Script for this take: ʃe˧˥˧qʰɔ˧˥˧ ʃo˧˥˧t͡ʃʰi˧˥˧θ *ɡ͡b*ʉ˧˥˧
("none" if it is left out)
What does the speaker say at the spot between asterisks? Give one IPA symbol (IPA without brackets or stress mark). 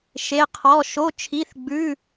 ɡ͡b